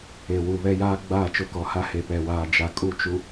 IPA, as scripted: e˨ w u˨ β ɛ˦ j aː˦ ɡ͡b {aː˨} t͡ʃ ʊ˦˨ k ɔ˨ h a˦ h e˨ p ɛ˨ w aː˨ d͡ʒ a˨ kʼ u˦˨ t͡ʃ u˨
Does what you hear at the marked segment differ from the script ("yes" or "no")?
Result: yes